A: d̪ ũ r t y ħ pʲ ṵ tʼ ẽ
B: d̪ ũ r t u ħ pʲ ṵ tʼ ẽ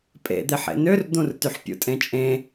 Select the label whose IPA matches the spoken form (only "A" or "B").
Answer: A